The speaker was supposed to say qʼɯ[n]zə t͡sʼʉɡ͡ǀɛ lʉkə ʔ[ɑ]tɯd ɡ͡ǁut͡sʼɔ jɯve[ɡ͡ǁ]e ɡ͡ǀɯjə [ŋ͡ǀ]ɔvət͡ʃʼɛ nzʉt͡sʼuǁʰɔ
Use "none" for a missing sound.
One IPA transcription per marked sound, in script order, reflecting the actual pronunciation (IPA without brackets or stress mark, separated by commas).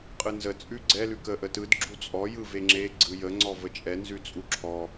n, ə, ŋ͡ǁ, ŋ͡ǀ